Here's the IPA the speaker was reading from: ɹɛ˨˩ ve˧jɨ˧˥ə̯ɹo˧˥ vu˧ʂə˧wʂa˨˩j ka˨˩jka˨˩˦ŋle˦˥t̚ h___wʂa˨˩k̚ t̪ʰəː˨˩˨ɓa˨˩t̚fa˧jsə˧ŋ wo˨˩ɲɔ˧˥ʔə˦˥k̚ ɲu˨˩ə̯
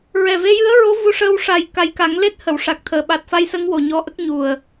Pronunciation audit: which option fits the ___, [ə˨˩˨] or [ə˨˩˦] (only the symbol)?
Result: ə˨˩˨